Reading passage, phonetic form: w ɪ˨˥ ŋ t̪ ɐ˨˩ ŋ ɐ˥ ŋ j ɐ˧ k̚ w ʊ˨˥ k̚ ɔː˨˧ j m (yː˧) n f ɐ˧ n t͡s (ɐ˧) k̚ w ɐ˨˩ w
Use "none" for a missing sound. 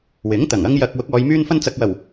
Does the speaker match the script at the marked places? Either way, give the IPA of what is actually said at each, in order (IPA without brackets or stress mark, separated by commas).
yː˧, ɐ˨